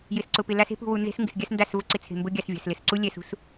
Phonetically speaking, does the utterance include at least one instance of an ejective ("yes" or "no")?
no